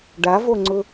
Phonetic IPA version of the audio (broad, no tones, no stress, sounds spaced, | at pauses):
ɖ a v o ŋ͡ǀ ʊ